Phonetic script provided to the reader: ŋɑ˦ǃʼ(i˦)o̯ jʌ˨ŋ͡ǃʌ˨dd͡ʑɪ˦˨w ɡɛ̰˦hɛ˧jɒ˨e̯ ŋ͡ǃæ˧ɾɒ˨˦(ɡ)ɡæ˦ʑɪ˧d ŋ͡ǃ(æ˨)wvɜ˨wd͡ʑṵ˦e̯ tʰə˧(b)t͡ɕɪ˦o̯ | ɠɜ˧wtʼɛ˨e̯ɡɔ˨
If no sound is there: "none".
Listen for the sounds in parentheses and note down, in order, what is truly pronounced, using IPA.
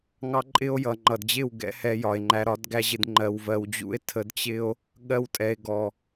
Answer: ɪ˦, d, ɜ˨, d

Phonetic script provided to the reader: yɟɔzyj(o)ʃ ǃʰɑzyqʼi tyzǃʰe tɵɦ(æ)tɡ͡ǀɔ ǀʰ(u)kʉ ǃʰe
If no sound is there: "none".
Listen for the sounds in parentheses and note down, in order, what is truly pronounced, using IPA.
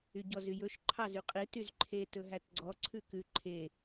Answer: ɵ, æ, ʉ

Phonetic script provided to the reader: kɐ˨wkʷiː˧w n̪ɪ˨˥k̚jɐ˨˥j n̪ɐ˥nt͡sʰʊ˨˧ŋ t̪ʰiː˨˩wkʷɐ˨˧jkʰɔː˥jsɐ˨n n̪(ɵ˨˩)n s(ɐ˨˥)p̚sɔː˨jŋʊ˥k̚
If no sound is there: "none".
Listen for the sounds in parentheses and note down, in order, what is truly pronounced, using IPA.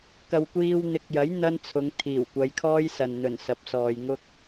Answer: ɵ˨˩, ɐ˨˥

